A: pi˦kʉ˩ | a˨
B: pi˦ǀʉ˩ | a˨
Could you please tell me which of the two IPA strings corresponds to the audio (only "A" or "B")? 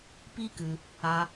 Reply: A